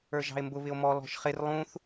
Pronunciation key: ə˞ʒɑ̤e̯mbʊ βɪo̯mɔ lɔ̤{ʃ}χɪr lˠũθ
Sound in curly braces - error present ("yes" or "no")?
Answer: no